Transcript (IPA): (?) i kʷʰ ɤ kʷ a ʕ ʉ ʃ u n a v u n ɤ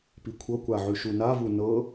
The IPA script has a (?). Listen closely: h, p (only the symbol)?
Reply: p